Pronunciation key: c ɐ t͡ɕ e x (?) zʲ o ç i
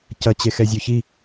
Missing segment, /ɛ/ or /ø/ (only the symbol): ɛ